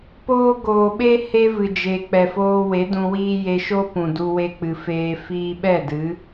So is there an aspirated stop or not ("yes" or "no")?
no